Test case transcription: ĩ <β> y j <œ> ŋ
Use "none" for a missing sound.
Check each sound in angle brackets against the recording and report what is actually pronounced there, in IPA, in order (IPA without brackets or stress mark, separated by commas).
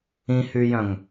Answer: h, œ̃